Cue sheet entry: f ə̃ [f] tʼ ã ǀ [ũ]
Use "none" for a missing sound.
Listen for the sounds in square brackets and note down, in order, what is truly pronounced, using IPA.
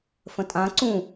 none, ũ

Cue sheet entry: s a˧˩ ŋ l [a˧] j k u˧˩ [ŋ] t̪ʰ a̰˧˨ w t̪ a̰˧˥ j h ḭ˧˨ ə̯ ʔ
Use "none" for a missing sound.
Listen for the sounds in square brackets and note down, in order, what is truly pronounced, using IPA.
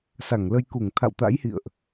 ə˧, ŋ

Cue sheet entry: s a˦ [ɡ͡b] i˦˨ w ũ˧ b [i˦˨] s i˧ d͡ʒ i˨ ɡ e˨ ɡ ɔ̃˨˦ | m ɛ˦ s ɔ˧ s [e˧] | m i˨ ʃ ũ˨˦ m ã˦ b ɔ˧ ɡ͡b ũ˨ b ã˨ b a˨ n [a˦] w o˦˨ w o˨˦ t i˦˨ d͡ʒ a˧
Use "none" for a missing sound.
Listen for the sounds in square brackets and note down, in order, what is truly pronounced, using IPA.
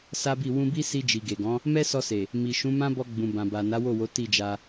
b, i˦, e˨, a˨˦

